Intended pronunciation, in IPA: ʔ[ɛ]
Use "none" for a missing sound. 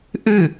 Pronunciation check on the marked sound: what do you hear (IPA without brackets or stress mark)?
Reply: ɨ